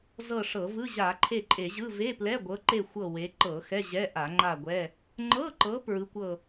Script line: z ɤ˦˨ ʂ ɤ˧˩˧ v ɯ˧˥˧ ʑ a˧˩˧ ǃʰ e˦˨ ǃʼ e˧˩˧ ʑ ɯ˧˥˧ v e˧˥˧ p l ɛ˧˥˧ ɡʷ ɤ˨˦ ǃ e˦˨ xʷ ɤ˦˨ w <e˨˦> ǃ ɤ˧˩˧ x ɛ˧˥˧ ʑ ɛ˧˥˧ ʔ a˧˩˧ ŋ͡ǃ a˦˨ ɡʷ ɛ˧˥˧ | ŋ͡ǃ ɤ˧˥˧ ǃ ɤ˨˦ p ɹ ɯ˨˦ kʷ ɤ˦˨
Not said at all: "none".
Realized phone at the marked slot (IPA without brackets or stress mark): e˨˦